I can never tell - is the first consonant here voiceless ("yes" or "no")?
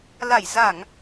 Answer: no